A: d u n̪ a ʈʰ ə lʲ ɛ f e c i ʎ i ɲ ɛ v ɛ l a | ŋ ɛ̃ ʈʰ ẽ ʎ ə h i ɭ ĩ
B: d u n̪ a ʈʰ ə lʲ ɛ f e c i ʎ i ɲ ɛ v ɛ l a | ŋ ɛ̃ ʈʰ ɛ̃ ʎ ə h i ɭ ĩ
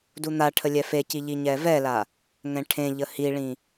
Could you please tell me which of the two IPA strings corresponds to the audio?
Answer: A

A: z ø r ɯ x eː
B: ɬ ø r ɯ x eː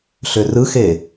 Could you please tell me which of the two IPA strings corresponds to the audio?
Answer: B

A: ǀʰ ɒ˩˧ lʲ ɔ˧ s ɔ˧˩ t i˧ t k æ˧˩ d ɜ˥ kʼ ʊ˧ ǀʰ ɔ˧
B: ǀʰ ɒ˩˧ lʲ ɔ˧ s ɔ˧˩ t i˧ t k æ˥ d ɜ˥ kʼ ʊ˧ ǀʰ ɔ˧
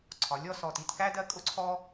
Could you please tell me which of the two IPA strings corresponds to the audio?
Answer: B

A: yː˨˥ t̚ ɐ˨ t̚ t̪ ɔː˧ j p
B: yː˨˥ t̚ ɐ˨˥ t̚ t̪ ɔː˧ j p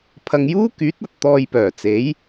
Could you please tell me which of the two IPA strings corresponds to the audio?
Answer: A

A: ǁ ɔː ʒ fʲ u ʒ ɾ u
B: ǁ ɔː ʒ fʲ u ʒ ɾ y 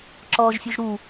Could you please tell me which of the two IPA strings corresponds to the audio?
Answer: A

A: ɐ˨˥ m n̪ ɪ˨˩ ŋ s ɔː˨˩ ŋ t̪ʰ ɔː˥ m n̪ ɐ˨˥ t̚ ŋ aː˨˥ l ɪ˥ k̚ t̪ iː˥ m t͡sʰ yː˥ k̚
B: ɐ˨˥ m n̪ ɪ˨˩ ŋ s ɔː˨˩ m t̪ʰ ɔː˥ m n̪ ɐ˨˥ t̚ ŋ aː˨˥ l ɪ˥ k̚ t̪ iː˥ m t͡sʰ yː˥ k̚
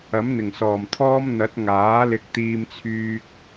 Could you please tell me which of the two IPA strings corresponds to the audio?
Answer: B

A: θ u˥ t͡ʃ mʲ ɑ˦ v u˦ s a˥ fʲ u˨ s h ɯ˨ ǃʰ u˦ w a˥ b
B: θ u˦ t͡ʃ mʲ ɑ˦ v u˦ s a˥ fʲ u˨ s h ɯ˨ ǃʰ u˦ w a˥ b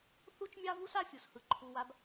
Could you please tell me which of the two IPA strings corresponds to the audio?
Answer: B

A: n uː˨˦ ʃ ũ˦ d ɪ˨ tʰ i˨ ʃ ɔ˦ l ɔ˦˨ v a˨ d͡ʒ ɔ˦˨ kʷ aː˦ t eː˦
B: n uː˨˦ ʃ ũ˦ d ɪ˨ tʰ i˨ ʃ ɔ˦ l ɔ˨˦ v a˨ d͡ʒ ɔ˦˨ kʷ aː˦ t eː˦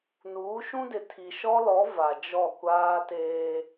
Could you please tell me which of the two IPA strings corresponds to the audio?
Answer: B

